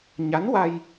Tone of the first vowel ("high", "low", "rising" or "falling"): rising